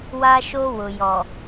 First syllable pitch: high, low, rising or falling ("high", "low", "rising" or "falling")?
high